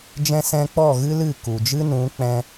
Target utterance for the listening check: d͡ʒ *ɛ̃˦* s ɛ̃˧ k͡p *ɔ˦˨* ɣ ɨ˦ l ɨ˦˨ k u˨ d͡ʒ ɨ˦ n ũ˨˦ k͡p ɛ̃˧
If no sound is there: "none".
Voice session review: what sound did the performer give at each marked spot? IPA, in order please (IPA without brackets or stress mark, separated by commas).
ɛ̃˧, ɔ˦˨